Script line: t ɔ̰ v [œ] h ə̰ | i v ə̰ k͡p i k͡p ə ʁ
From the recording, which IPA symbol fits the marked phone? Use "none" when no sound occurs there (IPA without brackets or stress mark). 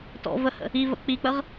ə